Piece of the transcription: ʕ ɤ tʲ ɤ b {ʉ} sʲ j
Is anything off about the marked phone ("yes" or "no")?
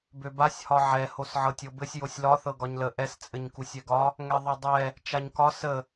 yes